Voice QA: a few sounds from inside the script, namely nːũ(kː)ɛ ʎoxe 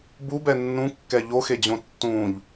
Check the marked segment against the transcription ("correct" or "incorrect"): correct